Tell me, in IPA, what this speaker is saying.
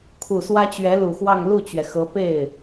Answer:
kʰ u˨˩ s w ä˥ t͡ɕ ɥ ɛ˧˥ l u˨˩ x w ɑ˥˧ ŋ l u˥˩ t͡ɕ ɥ ɛ˩ x ɤ˧˥ p e˥˩ ɪ̯

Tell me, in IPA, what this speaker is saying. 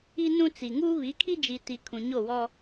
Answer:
i˦ n ũ˦ t͡s i˨ ŋ uː˦ β i˨˦ kʰ i˦ d͡ʒ i˨ t i˨ kʰ ũ˨ ɲ o˦˨ w ɔ˦

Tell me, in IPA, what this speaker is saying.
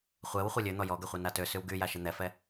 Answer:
χʷ ɛ w χʷ e lʲ ø n̪ ɔ j ɔ ɡ ɛ χʷ e n a t ø s y w ɡ y j a ʃ e n̪ ɛ f ɛ

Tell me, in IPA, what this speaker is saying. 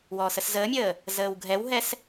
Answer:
w ɔː s ə s z əː mʲ əː | z əː w ɡʱ ɛ w ɦ ɛ s

